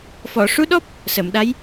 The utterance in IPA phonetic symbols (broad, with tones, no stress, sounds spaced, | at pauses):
f ɔ˨˩˨ ʂ u˧˥ ɗ ɔ˦˥ p̚ | s ə˨˩˨ m ɗ a˧˥ j